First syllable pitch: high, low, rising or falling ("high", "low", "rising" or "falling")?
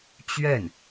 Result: falling